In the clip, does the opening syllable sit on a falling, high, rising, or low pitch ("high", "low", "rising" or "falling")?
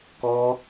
high